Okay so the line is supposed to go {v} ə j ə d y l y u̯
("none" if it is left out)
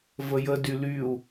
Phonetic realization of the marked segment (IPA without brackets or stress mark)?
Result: v